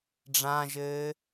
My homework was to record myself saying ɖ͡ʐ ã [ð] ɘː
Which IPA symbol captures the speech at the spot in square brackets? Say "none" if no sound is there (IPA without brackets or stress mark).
ʒ